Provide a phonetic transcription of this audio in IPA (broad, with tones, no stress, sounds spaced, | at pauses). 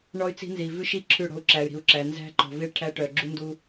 ɳ ɔ˦ y̯ t͡s i̤˦ n z i˨ v ʉ˦ ʃ i˦ ǁʰ ʉ˦˨ ɽ ɔ̤˦ u̯ ǁ æ˨ y̯ ɾ i̤˨ u̯ ǁ æ˨ n z æ̤˦ ǃ ɔ̤˨ v i˦ ɭ ʈʰ æ˦ ʈ œ˨ ɡ͡ǁ u˦ n d u˦